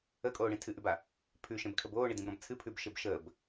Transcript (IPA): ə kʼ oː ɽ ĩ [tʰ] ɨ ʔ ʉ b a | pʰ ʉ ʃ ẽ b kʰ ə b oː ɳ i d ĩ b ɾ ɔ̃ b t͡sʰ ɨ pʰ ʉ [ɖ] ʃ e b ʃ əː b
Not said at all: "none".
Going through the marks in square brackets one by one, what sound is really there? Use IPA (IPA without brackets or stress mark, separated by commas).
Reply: tʰ, b